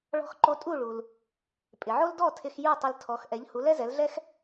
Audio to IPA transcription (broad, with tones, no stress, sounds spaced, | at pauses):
ɭ ɔ̤˧ x ǃ o˧ tʼ u˥˩ ɭ u˩ l | pʼ ɪ˩ ʕ o˥ l d ɔ˥˩ tʰ ɪ˧ x j u˥˩ tˤ ɪ˧ l tʰ ɔ˩˥ x ʔ ɛ˩˥ ʎ h u˩˥ l ɛ˥ z ɛ˩˥ l ɮ ɛ˥ x